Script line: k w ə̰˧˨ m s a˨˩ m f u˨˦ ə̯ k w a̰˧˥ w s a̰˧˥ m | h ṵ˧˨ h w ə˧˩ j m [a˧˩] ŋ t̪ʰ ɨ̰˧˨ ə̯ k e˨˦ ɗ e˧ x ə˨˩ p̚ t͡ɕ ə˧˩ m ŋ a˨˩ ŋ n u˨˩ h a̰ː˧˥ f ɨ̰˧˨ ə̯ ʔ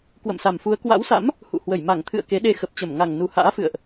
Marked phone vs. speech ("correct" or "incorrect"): correct